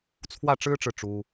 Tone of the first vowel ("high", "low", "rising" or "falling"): falling